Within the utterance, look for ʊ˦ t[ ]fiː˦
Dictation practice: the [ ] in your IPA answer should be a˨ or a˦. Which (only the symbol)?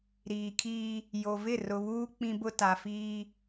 a˨